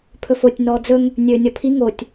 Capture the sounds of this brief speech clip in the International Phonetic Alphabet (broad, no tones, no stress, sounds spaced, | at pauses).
pʰ ɵ f o tʲ n ɔː d͡z ɵ ŋ | nʲ ɵː nʲ ɔ pʰ i ŋ o tʲ